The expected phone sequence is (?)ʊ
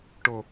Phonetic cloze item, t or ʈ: ʈ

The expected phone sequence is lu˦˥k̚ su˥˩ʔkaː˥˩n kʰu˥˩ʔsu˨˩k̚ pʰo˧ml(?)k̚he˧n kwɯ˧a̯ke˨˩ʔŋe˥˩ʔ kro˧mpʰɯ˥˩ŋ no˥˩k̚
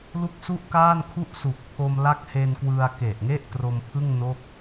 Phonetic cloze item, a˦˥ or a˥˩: a˦˥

